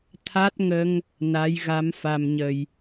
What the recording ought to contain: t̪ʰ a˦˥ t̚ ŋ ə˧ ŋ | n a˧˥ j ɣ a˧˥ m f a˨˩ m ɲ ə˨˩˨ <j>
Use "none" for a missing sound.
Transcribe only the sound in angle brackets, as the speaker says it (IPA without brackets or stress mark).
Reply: j